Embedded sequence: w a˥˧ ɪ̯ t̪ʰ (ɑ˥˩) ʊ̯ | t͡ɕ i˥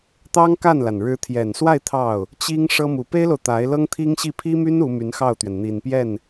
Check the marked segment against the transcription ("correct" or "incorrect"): correct